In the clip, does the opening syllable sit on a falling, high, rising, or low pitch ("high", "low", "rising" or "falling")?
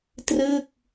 falling